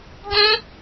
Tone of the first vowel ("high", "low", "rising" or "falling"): high